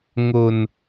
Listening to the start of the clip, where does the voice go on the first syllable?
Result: low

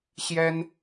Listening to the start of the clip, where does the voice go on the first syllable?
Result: high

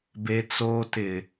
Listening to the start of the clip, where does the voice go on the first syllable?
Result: high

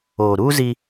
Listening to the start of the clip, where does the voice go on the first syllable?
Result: low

